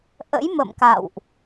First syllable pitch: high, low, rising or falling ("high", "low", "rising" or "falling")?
rising